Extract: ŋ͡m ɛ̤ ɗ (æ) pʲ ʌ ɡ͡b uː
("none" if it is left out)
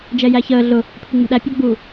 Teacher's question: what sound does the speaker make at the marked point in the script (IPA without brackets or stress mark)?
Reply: æ